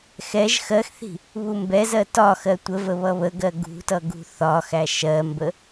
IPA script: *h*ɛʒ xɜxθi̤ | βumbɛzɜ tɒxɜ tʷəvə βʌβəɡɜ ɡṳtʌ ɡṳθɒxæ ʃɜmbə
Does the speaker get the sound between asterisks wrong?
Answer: yes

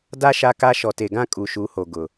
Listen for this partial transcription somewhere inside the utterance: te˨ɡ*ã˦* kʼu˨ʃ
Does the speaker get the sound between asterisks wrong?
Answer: no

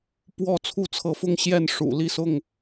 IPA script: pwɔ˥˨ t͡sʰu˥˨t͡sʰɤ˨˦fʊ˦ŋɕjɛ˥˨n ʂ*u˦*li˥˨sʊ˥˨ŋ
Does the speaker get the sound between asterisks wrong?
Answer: yes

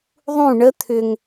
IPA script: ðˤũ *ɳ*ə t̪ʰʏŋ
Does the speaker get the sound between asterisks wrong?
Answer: no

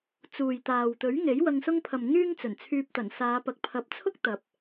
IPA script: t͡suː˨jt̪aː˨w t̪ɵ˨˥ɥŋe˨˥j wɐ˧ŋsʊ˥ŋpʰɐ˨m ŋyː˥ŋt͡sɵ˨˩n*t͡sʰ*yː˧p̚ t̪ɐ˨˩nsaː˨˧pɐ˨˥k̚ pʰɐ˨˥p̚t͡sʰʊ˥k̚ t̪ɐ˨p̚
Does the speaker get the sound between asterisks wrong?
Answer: no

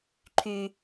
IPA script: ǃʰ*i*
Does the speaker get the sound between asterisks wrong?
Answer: yes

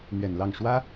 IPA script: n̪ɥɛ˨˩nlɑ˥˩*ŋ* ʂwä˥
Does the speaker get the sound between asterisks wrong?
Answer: no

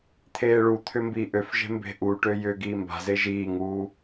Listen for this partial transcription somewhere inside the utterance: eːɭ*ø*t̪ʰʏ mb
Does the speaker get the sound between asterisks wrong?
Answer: yes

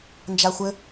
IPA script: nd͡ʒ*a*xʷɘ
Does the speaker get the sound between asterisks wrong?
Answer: no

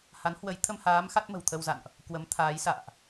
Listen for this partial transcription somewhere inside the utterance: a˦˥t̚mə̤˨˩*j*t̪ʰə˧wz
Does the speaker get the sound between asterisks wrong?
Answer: yes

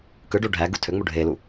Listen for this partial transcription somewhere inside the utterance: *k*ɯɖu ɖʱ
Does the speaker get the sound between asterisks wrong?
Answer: no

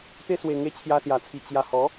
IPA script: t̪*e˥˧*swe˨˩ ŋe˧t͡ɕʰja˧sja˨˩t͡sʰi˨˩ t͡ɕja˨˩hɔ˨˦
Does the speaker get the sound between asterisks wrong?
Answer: yes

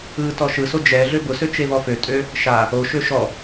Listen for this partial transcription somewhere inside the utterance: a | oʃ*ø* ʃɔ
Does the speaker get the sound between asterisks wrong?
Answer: no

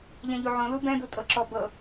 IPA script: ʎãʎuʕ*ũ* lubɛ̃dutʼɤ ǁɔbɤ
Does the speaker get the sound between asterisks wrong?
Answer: yes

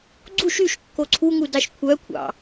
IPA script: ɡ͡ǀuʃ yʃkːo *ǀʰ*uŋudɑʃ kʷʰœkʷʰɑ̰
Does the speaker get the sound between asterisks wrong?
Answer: no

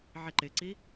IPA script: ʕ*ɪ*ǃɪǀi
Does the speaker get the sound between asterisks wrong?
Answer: no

